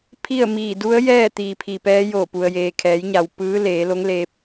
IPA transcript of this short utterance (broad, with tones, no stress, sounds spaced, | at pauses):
pʰ i˥˨ ə̯ m iː˧˩ d u˧˥ ə̯ j ɛː˥˨ t̪ iː˩ pʰ i˩ p ɛː˧˥ j o˧˩ p u˩ ə̯ j eː˩ kʰ ɛː˩˧ j ɲ a˩ w p ɯː˧˥ l eː˩˧ l o˧˥ ŋ l eː˧ p̚